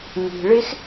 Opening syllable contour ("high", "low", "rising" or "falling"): low